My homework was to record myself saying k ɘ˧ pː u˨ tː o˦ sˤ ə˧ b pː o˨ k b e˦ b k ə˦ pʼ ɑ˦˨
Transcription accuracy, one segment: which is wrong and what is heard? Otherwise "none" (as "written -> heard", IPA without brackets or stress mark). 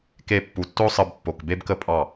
ɘ˧ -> e˧